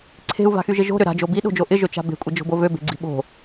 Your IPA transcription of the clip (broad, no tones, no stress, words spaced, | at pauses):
ǀʰe̤u̯va̤xyʒɪ ʒo̤ɾʏ ɾa̤d͡ʒo biɗo̤d͡ʒo ʔɪʒøt͡ʃa̤ be̤kʷʼɪd͡ʒo̤bo vøbe̤ɡ͡ǀi̤ ɓo̤